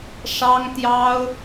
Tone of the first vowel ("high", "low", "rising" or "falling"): high